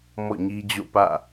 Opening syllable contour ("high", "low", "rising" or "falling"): falling